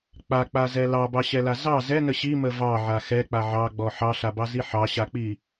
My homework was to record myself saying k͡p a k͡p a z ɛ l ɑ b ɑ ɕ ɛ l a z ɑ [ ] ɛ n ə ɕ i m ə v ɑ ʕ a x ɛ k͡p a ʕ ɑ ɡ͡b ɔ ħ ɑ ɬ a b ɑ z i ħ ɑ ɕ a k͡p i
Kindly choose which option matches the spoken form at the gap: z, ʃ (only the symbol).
z